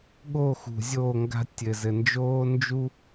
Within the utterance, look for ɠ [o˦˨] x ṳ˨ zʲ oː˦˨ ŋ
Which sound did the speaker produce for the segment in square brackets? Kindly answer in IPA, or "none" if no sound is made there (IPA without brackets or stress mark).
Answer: o˦˨